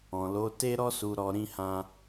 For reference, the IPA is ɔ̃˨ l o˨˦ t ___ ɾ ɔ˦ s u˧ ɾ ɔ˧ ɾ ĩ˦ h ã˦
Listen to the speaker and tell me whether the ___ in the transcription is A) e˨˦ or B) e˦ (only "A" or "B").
B